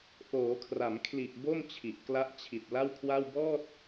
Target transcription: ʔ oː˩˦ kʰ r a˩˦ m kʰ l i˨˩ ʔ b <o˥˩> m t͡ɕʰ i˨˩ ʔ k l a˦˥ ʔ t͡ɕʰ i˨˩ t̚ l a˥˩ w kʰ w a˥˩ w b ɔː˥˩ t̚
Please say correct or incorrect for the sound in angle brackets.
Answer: correct